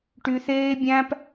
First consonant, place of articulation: retroflex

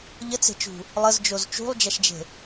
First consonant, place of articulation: palatal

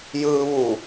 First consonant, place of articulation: palatal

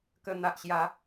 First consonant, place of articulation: velar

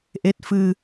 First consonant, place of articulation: glottal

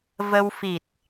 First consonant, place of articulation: labial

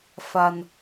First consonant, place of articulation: labial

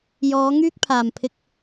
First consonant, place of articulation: palatal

